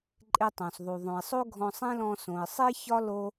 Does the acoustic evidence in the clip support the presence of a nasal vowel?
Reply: yes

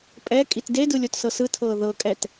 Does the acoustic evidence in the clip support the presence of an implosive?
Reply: no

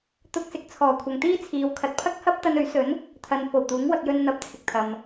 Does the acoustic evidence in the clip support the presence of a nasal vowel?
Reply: no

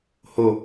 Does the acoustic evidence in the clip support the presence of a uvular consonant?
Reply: no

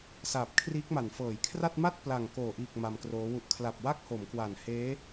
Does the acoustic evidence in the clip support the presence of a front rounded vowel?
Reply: no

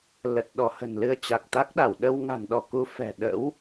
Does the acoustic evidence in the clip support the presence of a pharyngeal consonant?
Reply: no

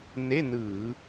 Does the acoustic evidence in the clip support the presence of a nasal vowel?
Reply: no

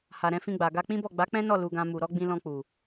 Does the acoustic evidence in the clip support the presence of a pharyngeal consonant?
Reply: no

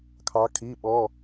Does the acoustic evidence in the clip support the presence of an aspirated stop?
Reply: yes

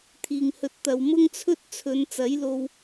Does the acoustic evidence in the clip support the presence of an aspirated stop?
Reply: yes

